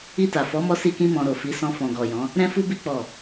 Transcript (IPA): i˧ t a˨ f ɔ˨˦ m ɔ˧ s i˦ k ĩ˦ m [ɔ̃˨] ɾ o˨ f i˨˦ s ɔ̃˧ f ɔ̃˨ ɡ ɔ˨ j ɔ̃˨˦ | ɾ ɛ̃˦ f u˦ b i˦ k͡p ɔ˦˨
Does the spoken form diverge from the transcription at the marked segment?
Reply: yes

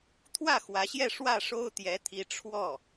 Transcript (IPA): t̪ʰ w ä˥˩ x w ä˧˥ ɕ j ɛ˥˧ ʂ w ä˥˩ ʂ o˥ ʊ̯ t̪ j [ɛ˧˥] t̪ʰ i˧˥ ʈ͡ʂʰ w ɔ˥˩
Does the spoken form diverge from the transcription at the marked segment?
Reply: no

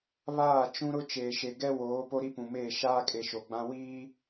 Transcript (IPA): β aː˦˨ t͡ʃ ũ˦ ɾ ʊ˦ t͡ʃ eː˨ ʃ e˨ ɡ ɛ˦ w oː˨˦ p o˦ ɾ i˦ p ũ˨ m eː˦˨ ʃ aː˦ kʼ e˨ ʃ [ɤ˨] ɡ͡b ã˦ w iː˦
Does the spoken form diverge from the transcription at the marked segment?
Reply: yes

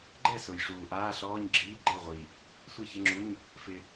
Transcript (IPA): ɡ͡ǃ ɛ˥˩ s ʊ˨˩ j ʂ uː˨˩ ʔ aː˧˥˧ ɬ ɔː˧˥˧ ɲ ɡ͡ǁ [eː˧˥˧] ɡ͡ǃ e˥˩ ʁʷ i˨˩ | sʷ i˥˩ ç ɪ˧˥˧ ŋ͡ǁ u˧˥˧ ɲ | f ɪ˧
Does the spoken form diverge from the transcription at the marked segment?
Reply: yes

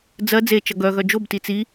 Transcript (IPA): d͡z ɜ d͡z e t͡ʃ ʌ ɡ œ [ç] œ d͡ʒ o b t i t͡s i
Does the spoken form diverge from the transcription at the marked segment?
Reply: yes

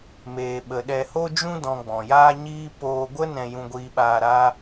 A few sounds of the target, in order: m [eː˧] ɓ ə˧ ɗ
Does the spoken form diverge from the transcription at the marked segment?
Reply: no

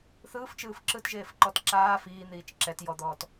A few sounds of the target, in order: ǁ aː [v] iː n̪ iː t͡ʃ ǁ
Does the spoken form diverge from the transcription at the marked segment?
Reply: yes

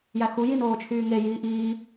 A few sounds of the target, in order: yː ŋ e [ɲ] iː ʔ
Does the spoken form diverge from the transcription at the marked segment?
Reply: yes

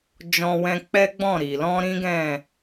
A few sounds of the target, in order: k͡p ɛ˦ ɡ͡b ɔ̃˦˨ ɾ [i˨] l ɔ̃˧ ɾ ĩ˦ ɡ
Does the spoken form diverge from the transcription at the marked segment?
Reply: no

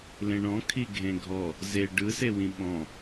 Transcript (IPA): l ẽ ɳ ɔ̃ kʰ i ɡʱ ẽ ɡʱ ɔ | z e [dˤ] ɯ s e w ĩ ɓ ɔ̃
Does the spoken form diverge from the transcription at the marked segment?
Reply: yes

